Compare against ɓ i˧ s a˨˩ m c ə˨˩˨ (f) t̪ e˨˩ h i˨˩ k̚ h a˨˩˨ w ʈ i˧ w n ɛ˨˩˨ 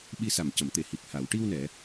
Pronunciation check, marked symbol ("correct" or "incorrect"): incorrect